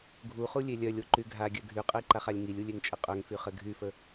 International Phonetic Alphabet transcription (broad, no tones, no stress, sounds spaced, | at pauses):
ɡʱ u χ u lʲ e lʲ œ lʲ o ǃ y ɡʱ a ɡʲ œ ɡʱ y qʼ ə i̯ ǃ a χ a lʲ ŋ i lʲ u lʲ e ŋ t͡ʃʼ ə qʼ œ ŋ f y χ ə ɡʱ y f ə